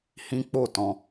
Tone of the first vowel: high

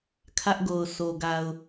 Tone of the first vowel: high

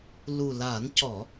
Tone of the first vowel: low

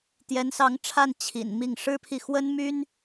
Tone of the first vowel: rising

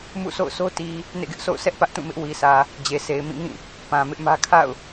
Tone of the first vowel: falling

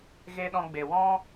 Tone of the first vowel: high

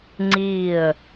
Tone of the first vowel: falling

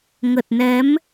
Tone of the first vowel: low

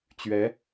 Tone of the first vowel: rising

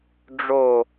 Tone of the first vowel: falling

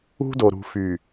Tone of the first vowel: high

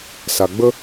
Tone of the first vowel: low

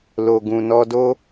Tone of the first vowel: low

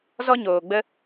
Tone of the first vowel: high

